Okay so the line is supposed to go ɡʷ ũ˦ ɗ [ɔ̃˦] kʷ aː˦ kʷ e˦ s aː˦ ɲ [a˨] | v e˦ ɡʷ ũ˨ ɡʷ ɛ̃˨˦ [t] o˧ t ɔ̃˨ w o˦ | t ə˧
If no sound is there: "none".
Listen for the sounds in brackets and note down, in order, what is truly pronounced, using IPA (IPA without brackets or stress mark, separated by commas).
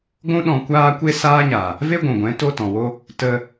ɔ̃˧, a˨, t